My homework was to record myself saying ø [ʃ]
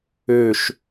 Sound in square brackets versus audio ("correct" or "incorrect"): correct